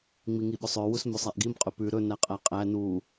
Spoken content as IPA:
ŋ͡m i ŋ i ɓ ɵ sˤ œ w u s m ø sˤ æ ʔ ɡ i m qʼ ɵ p ʉ ɾ ɵ n æ qʼ æ qʼ æ n u

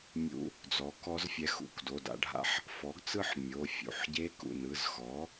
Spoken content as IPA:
mʲ ṵ˧ | d͡z ɔ˩˥ k ɔ˧˥ z fʲ ɛ˧ x ṵ˩˧˩ k d o˩˧˩ d a̰˧ ɖʱ a̰˧ ħ | f ɔ˩˥ ɡ t͡s ɯ˥˨ ħ mʲ o˩˧˩ fʲ ṵ˩˧˩ ħ ɟ e˧˥ k ṵ˩˧˩ n ɯ˩˧˩ z x ɔ˩˥

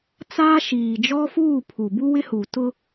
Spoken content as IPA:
t͡s aː˦ ʃ iː˨ d͡ʒ ɔ˦ f uː˦˨ pʰ u˨ b u˦ w ɪ˦ h u˨ t ʊ˦

